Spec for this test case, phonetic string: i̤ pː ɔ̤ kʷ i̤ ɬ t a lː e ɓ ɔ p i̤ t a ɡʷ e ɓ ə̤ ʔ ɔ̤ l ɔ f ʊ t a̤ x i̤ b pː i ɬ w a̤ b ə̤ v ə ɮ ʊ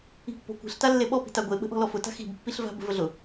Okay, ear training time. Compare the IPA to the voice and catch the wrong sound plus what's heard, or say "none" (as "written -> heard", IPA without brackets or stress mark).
w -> v